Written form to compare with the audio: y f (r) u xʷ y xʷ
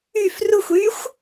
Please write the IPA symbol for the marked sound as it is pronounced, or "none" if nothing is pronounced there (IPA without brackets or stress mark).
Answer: r